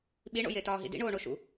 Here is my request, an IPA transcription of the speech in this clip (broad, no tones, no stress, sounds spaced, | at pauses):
ɓ i ɳ o̰ j e t ɒː ɦ ḭ d ḭ ɳ oː ɳ o ʃ ṵ